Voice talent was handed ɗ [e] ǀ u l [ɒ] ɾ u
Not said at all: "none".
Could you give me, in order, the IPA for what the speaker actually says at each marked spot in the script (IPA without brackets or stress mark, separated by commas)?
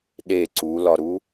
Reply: e, ɒ